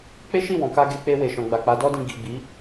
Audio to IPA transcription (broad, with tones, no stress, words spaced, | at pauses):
k͡pe˦ʃi˦˨wɔ̃˨ka˧ ɡe˧k͡pe˧ we˨ʃɔ̃˨ ɡ͡ba˨k͡pa˨˦dɔ˦dĩ˧ ɡi˨ ɡ͡bi˨˦